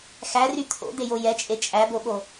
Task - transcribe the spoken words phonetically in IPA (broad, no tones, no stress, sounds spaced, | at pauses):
x æ r y t̪ʰ o̰ d̪ e j o j ɛ t͡ʃʼ e t͡ʃʼ æ b o ɓ o